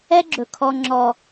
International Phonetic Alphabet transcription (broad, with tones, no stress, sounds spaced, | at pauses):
ɛ˦ ɡ͡ǁ ɵ˨ kʰ ɔ˦ ŋ͡ǁ ɔ˦